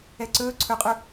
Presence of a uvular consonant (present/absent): present